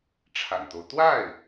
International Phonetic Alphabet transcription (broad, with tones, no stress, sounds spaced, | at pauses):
ʈ͡ʂʰ a̰˨˩ n t̪ o˦ ʊ̯ t̪ w a˥˩ ɪ̯